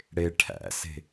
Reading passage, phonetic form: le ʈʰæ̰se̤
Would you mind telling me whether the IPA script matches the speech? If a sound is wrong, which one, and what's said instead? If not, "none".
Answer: l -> ɽ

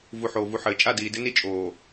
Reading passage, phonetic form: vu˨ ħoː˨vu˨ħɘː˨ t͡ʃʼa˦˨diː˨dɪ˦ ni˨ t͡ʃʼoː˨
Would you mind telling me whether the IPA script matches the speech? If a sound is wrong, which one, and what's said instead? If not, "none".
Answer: i˨ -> i˦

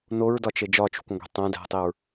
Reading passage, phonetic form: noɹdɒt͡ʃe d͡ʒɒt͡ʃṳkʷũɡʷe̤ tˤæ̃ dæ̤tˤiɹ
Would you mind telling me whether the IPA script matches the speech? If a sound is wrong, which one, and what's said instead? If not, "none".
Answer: none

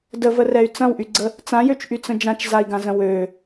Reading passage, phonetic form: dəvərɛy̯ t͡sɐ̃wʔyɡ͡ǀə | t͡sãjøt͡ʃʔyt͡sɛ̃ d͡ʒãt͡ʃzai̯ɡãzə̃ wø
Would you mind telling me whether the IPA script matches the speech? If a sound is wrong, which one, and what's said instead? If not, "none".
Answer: ɛ̃ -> ə̃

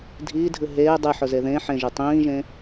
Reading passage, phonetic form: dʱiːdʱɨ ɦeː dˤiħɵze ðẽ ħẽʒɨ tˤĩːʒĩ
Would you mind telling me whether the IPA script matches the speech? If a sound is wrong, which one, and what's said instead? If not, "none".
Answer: ĩ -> ẽ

